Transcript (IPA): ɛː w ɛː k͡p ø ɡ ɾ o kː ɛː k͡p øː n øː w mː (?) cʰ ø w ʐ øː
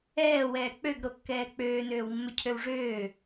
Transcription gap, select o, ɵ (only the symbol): ɵ